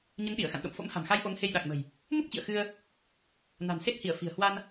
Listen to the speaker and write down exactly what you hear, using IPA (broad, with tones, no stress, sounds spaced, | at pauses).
ɲ ə˨˦ n ɗ i˧˩ ə̯ x a̰˧˨ n ɗ o̰˧˨ m f o̰˧˥ m h a̤˨˩ m x a˧ j ʔ o˨˦ ŋ h e˧ j ɗ a˨˩ k̚ m ə̤˨˩ j | m u˦˥ k̚ t͡ɕ ḭ˧˨ ə̯ x ɨ˧ ə̯ | n a̤˨˩ n s e˦˥ t̚ h i˧˩ ə̯ f i̤˨˩ ə̯ h w a˧ n